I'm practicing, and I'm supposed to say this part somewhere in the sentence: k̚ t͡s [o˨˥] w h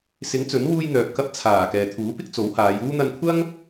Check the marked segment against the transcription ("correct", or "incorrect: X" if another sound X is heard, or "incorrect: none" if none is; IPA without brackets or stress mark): correct